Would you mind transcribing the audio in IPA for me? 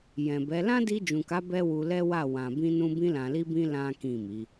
jɛ̃˨bɛ˨˦ lã˦di˧d͡ʒũ˨ka˨˦ bɛ˦wu˧lɛ˦wa˦˨ wã˨bĩ˧nũ˧ bĩ˧lã˨li˧bĩ˧ lã˦kĩ˦˨mi˨˦

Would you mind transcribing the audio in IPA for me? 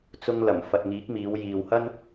t͡sʊ˧ŋlɐ˨˩m fɐ˨t̚ŋiː˨˥k̚miː˨˧w jiː˨whɐ˥n

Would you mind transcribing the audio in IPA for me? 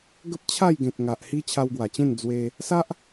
ɡə˦p̚t͡ɕʰa˥˧jɡẽ˨t̚ ŋa˨ʔhi˦ t͡ɕʰa˧wɡwa˨˩t͡ɕẽ˥˧n d͡zwe˧ | sa˦ʔ

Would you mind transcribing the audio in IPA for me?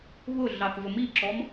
βʊ ɮɑθvəmiǁɔm

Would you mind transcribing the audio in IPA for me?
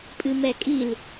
pʼɨmɛkʼil

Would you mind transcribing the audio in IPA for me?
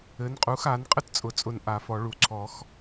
ɘ˩˥nqʼu˩˥xa˩˥n qʼɘ˥tt͡sʼʊ˨˩˦t͡sʼʊ˧˩n ʔa˨˩˦fɔ˨˩˦ɭu˨˩˦ ǀʰɔ˨˩˦x

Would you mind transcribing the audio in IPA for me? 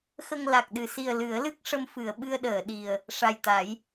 xə˧ŋla˨˩k̚ɗɨ˨˩ si˨˩ə̯ lɨ˨˩˦ə̯lɨ˦˥k̚ ʂə˧mfɨ˨˩˨ə̯ ɓɨ˧ə̯ɗəː˨˩˨ɗi˨˩ə̯ | ʂa˨˩jt̪a˨˩˦j

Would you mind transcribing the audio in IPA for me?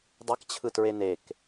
dˤɛkt͡ɕʰɯtɹe nek

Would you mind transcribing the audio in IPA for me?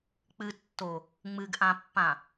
k͡pɨtːo | ŋ͡mɨɡʔãpːã

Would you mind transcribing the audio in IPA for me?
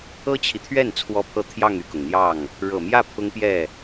ɤ˥t͡ɕʰi˨t̪ʰɥɛ˥˩n t͡sʰwɔ˥pʰɤ˥˧ t̪ʰjɑ˥˧ŋy˥˩kʊ˩ŋ n̪jɑ˥˩ŋ | ɻɤ˨˩mjä˥˩ pʰʊ˥ŋpjɛ˥˩

